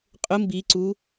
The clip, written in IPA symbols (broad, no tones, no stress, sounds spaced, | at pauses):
qʼ ʊ m b i ǀ u